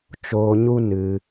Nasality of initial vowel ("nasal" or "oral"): oral